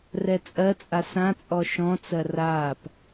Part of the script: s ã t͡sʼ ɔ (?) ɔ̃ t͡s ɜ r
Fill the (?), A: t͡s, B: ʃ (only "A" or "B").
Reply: B